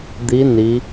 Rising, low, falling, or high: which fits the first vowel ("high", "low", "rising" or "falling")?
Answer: rising